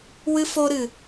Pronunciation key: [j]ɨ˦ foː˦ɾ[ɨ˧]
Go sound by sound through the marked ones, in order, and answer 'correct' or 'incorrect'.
incorrect, correct

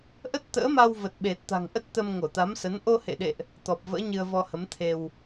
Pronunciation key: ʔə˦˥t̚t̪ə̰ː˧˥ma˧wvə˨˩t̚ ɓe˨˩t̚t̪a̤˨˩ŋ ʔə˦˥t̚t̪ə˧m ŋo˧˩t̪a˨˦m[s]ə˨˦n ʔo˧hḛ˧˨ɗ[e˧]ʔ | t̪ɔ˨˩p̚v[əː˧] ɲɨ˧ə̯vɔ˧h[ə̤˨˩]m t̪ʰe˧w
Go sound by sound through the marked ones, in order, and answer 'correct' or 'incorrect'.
correct, incorrect, incorrect, incorrect

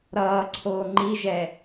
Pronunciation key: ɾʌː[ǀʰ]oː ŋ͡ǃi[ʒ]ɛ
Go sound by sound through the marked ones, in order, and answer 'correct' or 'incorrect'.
correct, correct

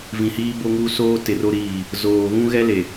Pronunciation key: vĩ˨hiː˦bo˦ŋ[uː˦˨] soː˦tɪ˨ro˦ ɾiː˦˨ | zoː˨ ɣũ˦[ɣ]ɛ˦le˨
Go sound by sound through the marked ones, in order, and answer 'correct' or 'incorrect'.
incorrect, correct

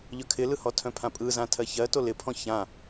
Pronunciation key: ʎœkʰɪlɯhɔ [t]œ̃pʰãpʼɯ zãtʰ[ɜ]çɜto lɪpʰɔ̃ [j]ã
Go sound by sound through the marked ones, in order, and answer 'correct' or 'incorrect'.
incorrect, correct, incorrect

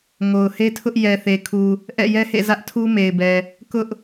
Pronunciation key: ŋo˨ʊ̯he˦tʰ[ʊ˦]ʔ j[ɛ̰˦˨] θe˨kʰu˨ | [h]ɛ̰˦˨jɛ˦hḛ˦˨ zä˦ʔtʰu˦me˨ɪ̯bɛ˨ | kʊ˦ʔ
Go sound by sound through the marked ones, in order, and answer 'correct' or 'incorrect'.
correct, incorrect, incorrect

